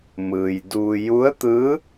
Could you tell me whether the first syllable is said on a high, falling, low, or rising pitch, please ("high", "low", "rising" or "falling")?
low